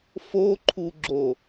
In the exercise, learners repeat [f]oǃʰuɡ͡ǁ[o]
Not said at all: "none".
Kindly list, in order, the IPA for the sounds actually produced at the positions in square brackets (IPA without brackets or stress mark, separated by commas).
f, o